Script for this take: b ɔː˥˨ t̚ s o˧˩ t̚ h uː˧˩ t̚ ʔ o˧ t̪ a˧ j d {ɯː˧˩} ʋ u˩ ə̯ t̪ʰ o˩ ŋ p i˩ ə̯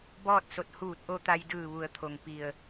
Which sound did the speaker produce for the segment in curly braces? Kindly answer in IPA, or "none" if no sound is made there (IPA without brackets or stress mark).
ɯː˧˩